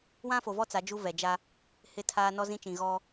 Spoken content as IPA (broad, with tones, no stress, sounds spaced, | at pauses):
w ã˦ f o˨ v ɔ˦ t͡s a˨˦ d͡ʒ u˦ v ɛ˨ d͡ʒ a˦ | h ɪ˦ tʰ aː˦ n ɔ˦ z ĩ˦ t͡ʃ ĩ˨ ɣ ɔ˦